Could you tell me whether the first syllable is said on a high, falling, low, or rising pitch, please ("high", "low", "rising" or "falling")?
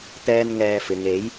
high